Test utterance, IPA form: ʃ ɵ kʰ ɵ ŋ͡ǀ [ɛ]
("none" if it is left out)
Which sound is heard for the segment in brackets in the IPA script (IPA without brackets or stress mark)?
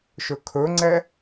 ɛ